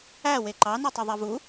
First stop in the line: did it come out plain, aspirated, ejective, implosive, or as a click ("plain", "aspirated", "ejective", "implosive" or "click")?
click